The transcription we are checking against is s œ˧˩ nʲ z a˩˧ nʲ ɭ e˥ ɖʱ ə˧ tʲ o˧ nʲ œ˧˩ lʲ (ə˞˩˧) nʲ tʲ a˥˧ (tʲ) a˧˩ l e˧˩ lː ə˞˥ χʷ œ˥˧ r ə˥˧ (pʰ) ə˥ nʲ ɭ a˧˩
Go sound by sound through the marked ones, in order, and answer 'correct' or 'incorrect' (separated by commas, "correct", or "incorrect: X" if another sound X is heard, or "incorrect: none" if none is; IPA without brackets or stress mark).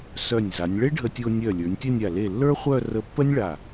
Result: correct, incorrect: nʲ, incorrect: pː